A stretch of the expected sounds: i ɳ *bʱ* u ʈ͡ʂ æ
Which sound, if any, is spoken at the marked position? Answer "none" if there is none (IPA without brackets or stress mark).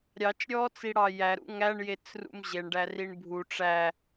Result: bʱ